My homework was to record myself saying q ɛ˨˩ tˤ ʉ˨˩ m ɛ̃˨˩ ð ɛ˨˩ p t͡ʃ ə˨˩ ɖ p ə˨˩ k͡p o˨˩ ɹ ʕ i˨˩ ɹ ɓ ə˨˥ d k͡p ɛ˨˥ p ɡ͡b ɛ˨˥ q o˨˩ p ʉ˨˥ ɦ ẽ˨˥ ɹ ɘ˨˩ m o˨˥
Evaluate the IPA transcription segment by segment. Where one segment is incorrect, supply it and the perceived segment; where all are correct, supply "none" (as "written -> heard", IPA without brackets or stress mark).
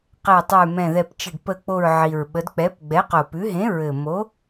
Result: none